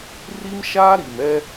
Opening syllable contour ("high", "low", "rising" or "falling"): high